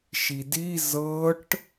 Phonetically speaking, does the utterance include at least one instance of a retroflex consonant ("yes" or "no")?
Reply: yes